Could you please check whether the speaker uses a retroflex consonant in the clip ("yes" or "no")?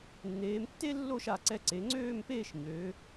no